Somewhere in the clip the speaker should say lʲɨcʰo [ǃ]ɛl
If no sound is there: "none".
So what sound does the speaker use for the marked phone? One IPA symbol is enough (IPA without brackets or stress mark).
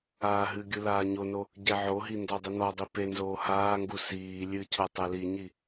tˤ